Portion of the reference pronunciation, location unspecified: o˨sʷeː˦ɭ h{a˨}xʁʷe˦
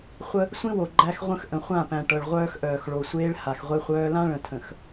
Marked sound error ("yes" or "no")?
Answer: no